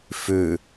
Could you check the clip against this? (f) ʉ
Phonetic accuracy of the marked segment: correct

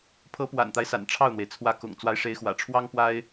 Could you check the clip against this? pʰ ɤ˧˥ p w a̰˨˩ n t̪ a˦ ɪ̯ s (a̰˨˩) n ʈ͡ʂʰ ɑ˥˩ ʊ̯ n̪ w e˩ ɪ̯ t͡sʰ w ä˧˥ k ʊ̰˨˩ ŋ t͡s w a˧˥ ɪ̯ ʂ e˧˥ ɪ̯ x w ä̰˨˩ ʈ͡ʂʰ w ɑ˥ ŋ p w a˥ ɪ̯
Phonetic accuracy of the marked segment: correct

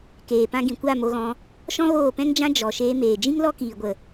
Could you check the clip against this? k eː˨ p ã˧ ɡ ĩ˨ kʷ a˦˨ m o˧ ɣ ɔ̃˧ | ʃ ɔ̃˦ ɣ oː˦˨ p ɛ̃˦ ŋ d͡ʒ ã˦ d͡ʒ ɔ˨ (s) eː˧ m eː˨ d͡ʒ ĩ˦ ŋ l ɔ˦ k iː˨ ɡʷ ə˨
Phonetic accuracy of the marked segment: incorrect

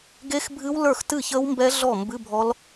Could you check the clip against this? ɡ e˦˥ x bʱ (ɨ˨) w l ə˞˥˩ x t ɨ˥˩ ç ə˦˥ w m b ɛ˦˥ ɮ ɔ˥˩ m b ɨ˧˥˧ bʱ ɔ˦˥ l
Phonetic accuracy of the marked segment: incorrect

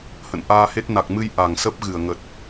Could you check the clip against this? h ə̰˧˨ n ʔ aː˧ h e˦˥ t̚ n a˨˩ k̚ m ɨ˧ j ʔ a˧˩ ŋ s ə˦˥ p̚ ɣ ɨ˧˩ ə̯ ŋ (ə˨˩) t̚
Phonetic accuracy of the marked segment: correct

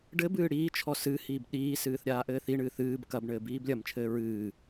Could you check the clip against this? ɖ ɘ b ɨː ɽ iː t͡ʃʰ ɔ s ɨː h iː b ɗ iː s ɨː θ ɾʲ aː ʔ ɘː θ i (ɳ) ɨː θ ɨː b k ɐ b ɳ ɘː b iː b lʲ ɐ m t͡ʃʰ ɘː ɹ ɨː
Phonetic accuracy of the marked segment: correct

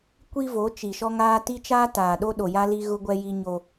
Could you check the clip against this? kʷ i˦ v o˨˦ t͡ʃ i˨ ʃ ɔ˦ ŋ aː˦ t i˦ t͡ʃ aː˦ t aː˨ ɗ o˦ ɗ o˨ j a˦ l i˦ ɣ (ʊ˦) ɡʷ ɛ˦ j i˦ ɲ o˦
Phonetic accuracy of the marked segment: correct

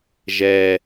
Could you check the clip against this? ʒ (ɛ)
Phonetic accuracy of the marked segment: correct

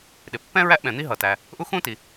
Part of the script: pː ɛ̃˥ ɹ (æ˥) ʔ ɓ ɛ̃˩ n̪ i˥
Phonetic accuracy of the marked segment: correct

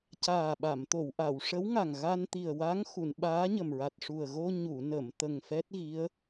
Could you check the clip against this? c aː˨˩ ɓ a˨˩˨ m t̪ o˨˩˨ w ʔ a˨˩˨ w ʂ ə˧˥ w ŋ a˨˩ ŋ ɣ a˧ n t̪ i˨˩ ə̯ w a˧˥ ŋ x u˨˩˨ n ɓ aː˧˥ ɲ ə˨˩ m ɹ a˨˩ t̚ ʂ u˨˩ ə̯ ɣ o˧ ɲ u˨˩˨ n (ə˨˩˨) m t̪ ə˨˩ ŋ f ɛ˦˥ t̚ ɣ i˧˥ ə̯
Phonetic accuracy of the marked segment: correct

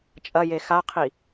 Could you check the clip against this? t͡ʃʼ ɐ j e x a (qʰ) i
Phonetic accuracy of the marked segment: correct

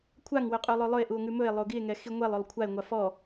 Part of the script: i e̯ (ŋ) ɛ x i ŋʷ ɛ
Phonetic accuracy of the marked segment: correct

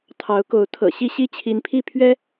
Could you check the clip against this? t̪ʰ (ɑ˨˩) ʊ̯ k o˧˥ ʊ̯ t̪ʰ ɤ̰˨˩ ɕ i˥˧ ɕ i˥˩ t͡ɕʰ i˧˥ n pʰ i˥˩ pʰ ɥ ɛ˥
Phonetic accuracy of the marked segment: incorrect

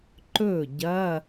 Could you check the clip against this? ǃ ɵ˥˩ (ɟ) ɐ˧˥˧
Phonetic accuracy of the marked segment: correct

